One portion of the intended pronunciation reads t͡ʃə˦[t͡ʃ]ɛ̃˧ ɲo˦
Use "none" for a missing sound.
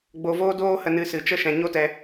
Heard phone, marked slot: ʃ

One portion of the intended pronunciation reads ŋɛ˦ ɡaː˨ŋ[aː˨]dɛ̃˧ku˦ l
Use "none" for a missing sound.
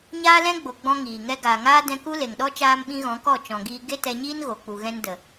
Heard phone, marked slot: aː˦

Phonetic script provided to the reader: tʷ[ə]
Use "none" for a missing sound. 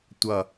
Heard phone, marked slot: ʌ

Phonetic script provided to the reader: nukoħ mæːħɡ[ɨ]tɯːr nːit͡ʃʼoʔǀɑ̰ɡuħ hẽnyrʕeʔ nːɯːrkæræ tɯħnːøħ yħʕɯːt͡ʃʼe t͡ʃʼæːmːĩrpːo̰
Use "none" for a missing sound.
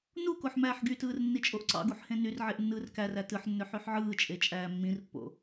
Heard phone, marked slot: y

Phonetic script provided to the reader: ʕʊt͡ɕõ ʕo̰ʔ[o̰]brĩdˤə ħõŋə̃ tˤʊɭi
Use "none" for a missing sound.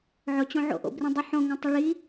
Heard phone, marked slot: o̰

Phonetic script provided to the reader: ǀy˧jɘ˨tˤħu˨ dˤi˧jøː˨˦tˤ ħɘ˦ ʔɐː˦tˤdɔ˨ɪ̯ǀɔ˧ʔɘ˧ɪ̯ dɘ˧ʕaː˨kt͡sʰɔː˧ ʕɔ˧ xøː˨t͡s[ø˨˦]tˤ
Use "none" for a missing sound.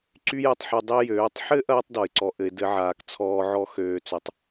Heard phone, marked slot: ø˨˦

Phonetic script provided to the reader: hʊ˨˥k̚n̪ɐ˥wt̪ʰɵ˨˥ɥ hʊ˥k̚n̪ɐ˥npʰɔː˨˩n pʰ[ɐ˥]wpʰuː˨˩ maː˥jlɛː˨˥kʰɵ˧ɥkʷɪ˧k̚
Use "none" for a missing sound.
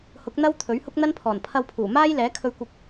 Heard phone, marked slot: ɐ˧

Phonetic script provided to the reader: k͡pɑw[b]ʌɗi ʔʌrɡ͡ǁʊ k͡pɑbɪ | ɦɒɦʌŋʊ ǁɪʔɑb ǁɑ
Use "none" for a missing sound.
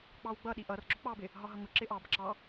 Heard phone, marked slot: ɡ͡b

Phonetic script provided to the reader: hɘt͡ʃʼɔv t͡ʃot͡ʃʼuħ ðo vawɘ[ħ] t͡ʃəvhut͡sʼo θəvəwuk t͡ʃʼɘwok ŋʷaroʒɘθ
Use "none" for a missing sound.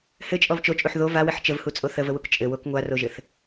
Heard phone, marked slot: ħ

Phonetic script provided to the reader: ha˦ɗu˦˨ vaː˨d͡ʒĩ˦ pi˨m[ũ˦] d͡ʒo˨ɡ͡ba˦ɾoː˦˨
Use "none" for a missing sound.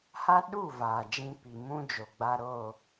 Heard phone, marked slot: ũ˦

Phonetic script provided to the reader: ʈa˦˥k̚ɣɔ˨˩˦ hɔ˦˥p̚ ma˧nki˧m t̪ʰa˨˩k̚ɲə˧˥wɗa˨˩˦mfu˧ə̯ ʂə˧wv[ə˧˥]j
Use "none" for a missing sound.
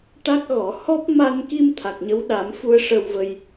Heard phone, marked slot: ə˧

